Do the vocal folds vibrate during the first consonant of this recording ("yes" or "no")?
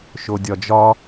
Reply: no